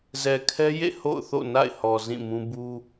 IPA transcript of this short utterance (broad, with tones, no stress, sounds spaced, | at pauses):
z ɛ˨ kʰ ɛ˦ j ḛ˦˨ h o̰˦˨ ʊ̯ θ o̰˦˨ n a̰˦˨ ɪ̯ h ɔ˨ z ĩ˦˨ m ũ˦ b u˦